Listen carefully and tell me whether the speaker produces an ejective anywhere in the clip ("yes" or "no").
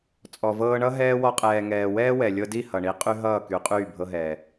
yes